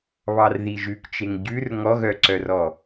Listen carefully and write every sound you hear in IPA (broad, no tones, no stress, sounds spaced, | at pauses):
β ɑ r ð i ʒ ʉ k t͡ʃ e ŋ ɟ ʉ r ŋ ɔ ɣ œ ǀ œ r ɔ